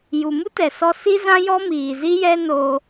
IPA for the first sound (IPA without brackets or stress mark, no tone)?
j